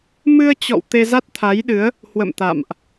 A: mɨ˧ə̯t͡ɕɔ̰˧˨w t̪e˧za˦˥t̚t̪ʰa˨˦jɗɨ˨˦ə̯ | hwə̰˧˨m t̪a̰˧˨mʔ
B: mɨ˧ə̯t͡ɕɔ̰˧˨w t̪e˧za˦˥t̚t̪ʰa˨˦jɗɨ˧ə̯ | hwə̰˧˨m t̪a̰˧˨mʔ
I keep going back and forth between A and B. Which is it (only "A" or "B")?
A